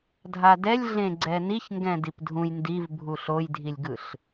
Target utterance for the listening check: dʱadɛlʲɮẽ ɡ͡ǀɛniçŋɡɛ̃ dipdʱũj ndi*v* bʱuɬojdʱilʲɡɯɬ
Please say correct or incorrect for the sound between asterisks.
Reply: correct